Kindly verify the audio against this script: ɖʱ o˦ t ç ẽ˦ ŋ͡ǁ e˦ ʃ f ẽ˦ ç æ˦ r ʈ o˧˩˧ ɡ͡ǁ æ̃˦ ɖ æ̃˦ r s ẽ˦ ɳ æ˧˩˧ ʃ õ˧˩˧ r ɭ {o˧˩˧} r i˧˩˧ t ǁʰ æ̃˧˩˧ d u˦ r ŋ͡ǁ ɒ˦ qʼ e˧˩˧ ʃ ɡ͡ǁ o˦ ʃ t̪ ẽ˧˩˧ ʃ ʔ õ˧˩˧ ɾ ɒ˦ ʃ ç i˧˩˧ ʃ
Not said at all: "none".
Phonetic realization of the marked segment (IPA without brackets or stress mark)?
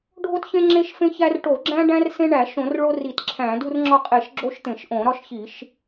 o˦